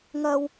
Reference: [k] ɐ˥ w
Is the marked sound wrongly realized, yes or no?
yes